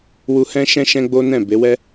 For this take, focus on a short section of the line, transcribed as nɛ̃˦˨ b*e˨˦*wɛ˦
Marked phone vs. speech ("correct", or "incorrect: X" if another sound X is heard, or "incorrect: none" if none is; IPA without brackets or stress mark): correct